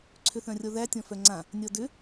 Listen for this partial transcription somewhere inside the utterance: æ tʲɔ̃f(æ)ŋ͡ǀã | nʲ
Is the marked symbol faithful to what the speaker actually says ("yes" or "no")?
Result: no